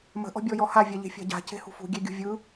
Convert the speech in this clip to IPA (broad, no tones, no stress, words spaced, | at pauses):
mə̤ ʔɔ̤bʲɔjɔha vʲaʎe̤fʲa̤ɟa̤ ce̤hṳfṳ ɡʲeɡʲṳvʲɯ